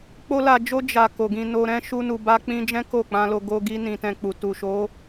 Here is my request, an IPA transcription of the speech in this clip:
k͡p o˦ l a˧ d͡ʒ o˦ d͡ʒ a˧ k o˨ ɡ ĩ˧ n o˧ ɾ ɛ̃˦ ʃ u˦ n u˧ b a˦ k͡p ĩ˦ d͡ʒ ɛ̃˦ k o˦˨ k͡p ã˧ l o˧ ɡ o˧ ɡ i˦ n ĩ˧ t ɛ̃˧ k͡p u˨ t u˨ ʃ o˨˦

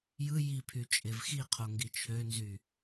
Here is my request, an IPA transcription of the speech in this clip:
j ɯ j i pʰ y t͡ʃʼ e v x i qʰ o ŋ ɡ i t͡ʃʰ ø n z y

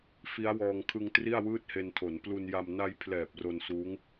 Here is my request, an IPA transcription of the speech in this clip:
f i˦˥ a̯ w ɔː˧ ŋ kʰ ɯ˧ ŋ t r i˥˩ a̯ w ɯː˥˩ t̚ h e˧ n tʰ o˩˦ n p l u˧ n j a˧ m n a˧ j pʰ l ɛː˨˩ p̚ r o˧ n s uː˦˥ ŋ

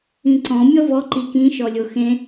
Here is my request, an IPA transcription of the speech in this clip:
ĩ ǀ ɔ̃ mʲ ɔ v ɔ ǃ i k ĩ ʃ ɔ lʲ o x ẽ

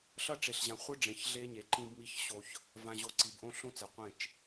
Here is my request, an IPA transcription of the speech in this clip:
ɬ ʌ˦˨ ʈ͡ʂ e˨ ɬ ʑ ã˨ χʷ ɯ˦ ɖ͡ʐ ẽ˨ ç ɮ e˦ ɲ e˨˦ ǃ ĩ˦ b m i˦ ç ɕ o˦ ç | v ã˨ ʑ o˨ ǀ i˨ b ʔ õ˦ ɬ õ˦ t͡s ɛ˨ qʷ ẽ˦˨ t͡ʃ

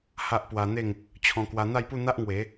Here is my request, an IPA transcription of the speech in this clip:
h a˦ ʔ p w a˧ n̪ e˥˧ ŋ | t͡ɕʰ ɔ̃˧ k w a˧ n̪ a˥˧ j p u˥˧ n̪ a˦ ʔ ŋ w e˨˦

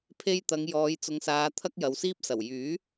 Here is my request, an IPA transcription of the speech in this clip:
pʰ e˧ j t̪ ɐ˨˧ ŋ j ɔː˨˧ j t͡s ʊ˨˧ ŋ s aː˨˧ t̪ʰ ɐ˥ k̚ j ɐ˨˧ w s iː˥ p̚ s ɐ˨˩ w j yː˨˥

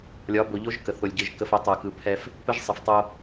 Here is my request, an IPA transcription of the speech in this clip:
lʲ ɒ˨˦ b o˨ ʎ o˦ ʒ k ə˨ θ o˨ lʲ ɟ ɯ˨ ʒ k ə˦ f ɘ˦ tˤ ɯ˨ k ɯ˨ pʰ ɛ˦ f | p ɘ˦ ʒ sˤ ɘ˨ f tˤ o˦

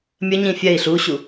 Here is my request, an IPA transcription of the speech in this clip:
mʲ ə ɲ ĩ fʲ ɛ i̯ ɬ u ɕ u

